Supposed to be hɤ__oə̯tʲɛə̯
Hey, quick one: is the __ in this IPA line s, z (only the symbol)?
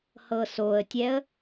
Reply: s